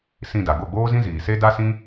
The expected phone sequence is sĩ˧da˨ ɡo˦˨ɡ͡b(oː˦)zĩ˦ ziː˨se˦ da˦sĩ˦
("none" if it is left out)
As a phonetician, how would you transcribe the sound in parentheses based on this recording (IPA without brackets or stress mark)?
oː˦